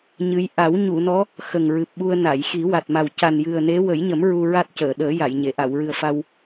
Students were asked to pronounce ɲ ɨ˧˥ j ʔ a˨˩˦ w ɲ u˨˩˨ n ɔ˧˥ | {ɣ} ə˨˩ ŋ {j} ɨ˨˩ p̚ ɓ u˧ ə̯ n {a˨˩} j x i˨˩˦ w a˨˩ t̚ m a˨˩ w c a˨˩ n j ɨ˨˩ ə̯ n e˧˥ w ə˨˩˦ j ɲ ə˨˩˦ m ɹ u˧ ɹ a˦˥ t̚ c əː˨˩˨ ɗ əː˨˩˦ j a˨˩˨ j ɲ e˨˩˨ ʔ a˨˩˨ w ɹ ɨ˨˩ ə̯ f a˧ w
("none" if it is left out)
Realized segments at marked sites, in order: x, ɹ, a˨˩˨

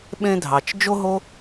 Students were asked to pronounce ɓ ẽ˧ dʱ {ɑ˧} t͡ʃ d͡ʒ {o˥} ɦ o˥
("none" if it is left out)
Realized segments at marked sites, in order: ɑ˩, o˥

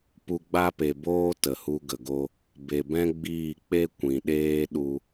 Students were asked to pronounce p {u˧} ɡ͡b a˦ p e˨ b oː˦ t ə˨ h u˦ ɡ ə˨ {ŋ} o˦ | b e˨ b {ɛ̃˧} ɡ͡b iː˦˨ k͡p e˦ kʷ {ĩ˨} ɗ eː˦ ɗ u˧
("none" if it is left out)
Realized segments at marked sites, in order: u˧, ɡ, ɛ̃˦, ĩ˨

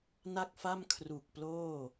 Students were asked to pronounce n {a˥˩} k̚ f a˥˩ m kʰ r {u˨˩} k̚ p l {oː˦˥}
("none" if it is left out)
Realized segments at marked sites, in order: a˥˩, u˨˩, oː˥˩

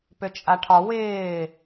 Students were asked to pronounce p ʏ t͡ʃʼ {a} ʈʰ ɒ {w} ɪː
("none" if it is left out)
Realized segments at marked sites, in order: a, w

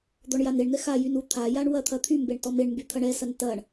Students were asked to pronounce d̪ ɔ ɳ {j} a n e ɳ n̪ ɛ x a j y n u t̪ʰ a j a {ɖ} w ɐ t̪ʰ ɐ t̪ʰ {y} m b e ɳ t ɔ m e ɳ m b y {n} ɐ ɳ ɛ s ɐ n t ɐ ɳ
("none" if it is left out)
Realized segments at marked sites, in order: j, ɳ, y, t̪ʰ

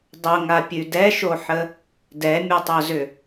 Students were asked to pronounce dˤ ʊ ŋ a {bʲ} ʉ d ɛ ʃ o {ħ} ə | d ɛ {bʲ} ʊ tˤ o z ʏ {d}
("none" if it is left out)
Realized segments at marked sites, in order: pʲ, ħ, mʲ, none

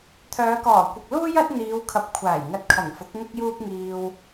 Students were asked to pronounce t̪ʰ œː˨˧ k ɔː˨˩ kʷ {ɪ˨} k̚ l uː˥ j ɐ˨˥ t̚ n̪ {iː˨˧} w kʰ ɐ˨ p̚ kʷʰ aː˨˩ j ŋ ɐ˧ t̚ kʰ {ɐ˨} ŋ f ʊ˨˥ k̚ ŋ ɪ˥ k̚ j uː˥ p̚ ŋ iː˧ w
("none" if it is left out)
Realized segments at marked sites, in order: ɪ˨, iː˨˧, ɐ˨˩

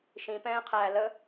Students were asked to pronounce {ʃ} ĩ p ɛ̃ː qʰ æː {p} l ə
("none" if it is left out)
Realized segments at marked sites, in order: ʃ, none

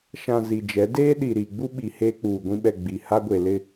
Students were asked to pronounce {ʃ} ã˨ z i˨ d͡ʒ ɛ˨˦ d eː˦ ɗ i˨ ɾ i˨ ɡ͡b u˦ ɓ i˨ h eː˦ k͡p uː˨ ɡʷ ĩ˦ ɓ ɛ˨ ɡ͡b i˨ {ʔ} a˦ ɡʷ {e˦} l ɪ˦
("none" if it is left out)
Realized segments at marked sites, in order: ʃ, h, e˨

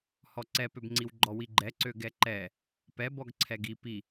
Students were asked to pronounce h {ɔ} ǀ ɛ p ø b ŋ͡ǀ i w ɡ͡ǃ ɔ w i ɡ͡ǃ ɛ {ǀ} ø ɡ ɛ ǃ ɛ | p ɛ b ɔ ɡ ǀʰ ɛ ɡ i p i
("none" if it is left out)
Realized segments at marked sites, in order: ɔ, ǀ

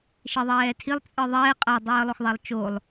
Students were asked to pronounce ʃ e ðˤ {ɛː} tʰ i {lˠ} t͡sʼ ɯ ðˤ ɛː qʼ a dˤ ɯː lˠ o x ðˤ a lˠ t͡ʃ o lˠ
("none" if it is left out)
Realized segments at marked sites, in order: ɛː, lˠ

